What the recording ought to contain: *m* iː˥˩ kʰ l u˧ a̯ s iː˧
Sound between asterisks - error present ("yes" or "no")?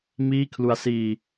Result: no